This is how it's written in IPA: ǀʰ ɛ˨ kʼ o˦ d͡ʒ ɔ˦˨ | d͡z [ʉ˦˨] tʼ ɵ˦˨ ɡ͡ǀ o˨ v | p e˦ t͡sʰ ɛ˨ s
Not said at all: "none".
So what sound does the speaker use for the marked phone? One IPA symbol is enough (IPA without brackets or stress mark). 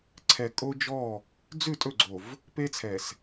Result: ʉ˦˨